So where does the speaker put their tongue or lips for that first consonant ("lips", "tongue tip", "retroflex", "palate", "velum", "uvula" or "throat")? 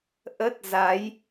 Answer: throat